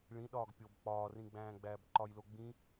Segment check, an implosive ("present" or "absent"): present